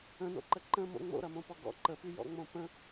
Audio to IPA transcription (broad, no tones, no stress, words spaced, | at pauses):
ə̃no̰ǃə ǃə̃mo̰ ŋ͡mo̰ɾɐmõpɔ ɡɔ̰ ǃəpyjɔ̰ŋ͡mõ pə̃